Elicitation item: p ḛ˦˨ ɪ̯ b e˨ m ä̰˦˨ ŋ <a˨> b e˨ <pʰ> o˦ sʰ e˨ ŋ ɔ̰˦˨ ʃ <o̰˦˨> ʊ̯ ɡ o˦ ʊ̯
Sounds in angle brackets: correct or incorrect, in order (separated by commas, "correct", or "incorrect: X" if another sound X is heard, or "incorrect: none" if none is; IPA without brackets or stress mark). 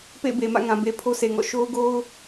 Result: incorrect: ã˨, correct, incorrect: o˦